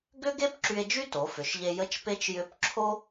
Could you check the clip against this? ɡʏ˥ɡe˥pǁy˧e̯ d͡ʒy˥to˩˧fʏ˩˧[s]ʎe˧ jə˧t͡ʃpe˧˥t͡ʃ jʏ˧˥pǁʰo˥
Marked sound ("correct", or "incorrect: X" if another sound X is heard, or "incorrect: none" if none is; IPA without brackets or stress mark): incorrect: ʃ